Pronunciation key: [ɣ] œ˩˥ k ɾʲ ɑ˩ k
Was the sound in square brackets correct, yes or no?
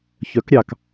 no